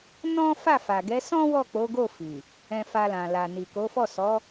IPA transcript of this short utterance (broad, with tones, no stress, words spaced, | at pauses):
nɔ̃˦fa˦˨ fa˨ɡɛ˨˦sɔ̃˦ wɔ˦˨k͡po˨˦ ɡo˦˨fi˨ | ɛ̃˧fa˧lã˨ la˨ni˨ko˨˦fɔ˦˨ sɔ˨˦